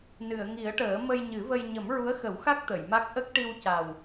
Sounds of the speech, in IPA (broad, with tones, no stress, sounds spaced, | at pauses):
n ɨ˨˩˨ ə̯ ŋ i˨˩˦ ə̯ ʈ əː˨˩˦ m ə˧ j ɲ ɨ˨˩˦ v ə˧ j ɲ ə˨˩˦ m ɹ u˧˥ ə̯ x ə˨˩˦ w x a˦˥ k̚ t̪ ə˨˩˨ j m a˦˥ k̚ ʔ ə˦˥ k̚ ʈ i˧ w c a˨˩ w